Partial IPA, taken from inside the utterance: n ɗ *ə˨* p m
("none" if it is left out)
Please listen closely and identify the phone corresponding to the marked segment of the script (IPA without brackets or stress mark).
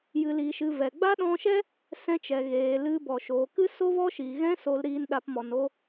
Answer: a˨